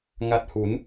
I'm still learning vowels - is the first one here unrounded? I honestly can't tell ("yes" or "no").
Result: yes